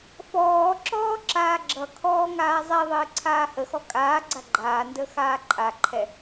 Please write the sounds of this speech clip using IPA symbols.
f ɔː ǁ ɔː ǁ aː ɡ͡ǁ ʌ kʰ ɔː ŋ aː zˤ ɛ ðˤ əː ǀʰ aː h ə x ɔ kʼ aː ɡ͡ǀ a ɡ͡ǃ aː n d ə x aː ǃʼ a ǃʰ ɛ

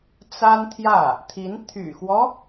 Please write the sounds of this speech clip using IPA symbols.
t͡s a˥ n t̪ʰ j ä˥˩ | t̪ʰ i˧˥ n t̪ʰ y̰˨˩ x w ɔ˦

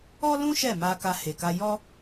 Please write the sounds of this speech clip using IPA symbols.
ɔ˦ l ũ˦ ʃ ɛ˦˨ m a˧ k a˧ h e˨ k a˧ j ɔ˦

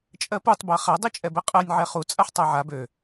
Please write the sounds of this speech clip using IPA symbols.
t͡ʃʼ ɜ p u tˤ b a χ a dˤ i t͡ʃʼ ɛ b ɛ qʼ ɜ nʲ ʕ ɛ χ u t͡sʼ a ħ tˤ a ʕ a b ø

